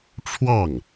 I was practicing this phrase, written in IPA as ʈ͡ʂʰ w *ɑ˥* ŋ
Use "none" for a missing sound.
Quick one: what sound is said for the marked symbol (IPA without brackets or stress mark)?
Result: ɑ˥˩